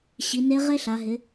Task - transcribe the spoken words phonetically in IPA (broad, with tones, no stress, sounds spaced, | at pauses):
ɕ i˩˧ n e˧˥ ʁ e˥ ɬ a˩˧ ɦ ɪ˩˧